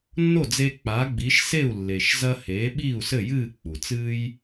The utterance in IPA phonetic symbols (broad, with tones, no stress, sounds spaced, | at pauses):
nː o˥˩ d͡z eː˧ k͡p a˩˥ ɡ͡b i˩˥ ʃ s e˥˩ u̯ lː e˩ ʃ z ɐ˧ h eː˩˥ ɓ iː˥˩ u̯ s ɘ˥˩ j ɨː˥˩ k͡p u˩ t͡s ɨː˥ j